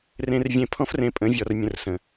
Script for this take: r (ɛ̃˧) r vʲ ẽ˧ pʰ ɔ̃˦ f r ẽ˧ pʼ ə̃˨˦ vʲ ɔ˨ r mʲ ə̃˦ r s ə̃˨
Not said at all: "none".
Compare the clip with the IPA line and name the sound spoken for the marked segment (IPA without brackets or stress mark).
ẽ˧